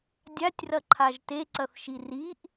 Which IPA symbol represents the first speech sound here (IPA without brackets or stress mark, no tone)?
dʲ